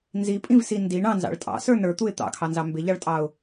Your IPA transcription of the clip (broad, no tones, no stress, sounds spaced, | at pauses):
n z i pʼ ĩ v s i n d i ɳ ɑ̃ n z ɑ̰ ɭ tʼ ɑ̰ s ə˞ n ə˞ t̪ u ɪ̯ t̪ ɑ̰ kʰ ɑ n z ɑ m b ɪ ʎ ɑ ɭ tʼ ɑ ʊ̯